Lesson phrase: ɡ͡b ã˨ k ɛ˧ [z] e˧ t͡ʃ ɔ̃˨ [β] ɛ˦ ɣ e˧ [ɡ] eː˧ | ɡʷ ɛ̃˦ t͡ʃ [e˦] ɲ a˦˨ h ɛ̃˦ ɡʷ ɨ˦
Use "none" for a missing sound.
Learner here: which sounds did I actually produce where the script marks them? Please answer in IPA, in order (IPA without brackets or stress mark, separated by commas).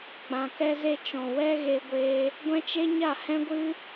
z, w, ɡʷ, e˦